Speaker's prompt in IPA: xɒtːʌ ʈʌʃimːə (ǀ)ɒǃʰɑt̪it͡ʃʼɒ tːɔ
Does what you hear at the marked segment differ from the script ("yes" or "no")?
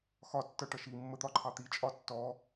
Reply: yes